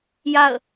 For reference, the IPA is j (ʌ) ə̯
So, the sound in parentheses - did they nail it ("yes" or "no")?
no